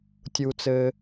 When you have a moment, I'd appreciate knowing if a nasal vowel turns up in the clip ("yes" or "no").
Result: no